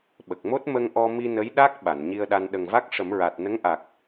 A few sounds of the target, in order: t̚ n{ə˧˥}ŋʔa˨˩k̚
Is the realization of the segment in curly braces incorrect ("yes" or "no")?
no